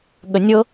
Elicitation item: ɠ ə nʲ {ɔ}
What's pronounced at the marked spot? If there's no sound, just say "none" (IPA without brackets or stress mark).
ɤ